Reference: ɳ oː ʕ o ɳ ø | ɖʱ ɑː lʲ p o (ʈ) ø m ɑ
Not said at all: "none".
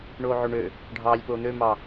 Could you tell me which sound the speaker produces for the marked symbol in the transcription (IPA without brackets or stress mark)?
n̪